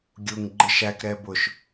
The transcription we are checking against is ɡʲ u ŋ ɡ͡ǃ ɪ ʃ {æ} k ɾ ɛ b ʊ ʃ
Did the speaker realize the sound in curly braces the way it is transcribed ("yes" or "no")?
yes